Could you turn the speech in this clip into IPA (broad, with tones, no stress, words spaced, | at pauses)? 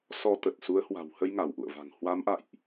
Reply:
sɔ˧t̪ə˨˩t̚ su˨˦ə̯hwa̤˨˩whə˧j ŋa˧˩wʔṵ˧˨ə̯va̤˨˩ŋ hwa˨˦m ʔa̰˧˨jʔ